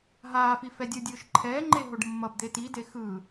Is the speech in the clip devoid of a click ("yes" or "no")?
no